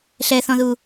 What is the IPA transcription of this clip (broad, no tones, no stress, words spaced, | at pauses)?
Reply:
ɬɛθɔ̃ðu